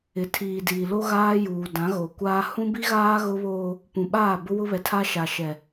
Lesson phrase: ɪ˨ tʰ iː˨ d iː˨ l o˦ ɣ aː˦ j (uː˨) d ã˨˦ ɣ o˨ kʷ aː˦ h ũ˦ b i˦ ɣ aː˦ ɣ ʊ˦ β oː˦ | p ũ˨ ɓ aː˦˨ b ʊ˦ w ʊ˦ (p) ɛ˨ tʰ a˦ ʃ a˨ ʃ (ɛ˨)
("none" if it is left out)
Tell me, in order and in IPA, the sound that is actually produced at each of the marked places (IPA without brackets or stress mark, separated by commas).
uː˨, β, ɛ˨